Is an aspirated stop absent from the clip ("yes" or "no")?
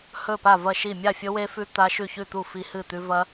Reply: yes